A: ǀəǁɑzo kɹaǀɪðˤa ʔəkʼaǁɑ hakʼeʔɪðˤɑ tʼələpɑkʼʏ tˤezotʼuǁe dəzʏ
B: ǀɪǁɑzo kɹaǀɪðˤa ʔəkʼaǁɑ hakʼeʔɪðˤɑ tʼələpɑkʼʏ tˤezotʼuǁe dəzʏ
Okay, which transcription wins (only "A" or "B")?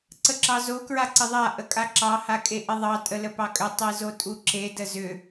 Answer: A